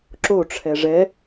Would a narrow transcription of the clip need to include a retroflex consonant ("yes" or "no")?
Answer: yes